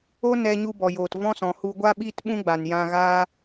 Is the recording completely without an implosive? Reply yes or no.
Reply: no